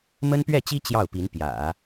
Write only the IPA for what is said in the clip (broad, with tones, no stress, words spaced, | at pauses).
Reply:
mə˥npɥɛ˥˩t͡ɕi˥ t͡ɕjɑ˥˩ʊ̯pi˧˥n pjä̰˨˩˦